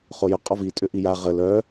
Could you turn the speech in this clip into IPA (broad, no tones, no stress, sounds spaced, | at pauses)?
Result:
χ o j ʊ qʼ ɔ v i tʼ ʏ ʔ i j a ʁ ə l œ